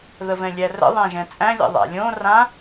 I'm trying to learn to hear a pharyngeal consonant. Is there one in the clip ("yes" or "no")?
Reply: no